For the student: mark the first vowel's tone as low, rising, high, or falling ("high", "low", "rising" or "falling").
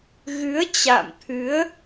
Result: rising